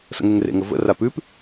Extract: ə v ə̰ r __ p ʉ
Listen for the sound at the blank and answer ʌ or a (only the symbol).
a